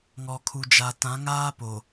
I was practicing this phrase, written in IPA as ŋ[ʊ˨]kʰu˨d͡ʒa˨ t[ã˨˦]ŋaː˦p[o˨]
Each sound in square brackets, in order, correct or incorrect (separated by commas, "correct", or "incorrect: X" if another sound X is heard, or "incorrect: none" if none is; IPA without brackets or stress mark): incorrect: ɔ˨, correct, correct